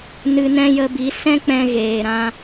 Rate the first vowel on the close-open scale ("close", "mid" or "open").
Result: close